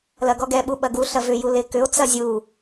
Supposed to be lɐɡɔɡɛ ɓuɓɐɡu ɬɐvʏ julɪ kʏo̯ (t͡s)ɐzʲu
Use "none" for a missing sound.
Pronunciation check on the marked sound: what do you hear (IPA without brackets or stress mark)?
t͡s